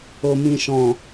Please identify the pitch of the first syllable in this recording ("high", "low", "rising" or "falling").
low